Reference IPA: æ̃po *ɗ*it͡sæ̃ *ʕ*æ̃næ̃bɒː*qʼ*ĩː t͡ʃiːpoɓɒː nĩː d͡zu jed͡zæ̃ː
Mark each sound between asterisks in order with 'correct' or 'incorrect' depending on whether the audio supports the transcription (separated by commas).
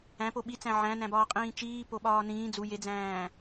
incorrect, correct, correct